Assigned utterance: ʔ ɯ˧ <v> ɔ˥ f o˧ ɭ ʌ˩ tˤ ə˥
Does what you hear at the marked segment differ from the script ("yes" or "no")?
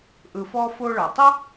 yes